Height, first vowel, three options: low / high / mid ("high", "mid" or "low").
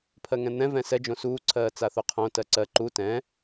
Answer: mid